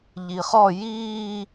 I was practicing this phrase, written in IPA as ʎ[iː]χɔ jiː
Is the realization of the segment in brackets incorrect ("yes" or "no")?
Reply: yes